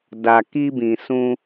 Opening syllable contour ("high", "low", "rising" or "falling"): low